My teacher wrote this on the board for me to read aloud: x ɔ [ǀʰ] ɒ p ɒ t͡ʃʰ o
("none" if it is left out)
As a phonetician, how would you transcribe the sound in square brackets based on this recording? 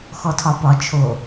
tʰ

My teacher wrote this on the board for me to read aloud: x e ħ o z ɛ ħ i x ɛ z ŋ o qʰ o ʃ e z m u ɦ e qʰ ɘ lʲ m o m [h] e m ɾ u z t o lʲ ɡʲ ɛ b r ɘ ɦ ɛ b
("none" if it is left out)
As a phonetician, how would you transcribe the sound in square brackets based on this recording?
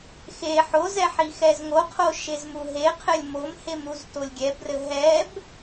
h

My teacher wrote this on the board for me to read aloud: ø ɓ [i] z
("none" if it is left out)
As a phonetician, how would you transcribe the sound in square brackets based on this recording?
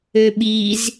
i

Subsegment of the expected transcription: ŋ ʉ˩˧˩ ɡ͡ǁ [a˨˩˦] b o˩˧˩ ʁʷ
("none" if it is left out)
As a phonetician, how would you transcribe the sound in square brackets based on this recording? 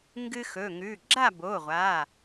a˥˨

